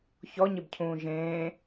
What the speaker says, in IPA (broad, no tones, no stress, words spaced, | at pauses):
çɔɲɪbcʰũː ʒẽː